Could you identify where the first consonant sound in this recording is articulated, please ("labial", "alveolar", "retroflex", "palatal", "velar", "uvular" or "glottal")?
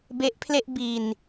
labial